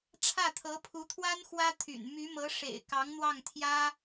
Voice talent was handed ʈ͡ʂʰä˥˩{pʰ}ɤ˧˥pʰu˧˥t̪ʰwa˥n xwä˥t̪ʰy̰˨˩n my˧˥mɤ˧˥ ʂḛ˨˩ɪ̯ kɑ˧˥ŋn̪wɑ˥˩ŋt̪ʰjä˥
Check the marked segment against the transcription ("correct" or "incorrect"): incorrect